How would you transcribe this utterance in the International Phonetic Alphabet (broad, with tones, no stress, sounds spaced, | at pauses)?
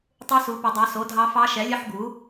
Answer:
tˤ u˦˥ s u˨˥ p ɐ˨˥ dˤ ɑ˨˥ s o˨˥ dʱ ɑ˦˥ f ɑ˦˥ ʃ ɛ˨˥ lʲ ɐ˦˥ ħ ɡ u˨˥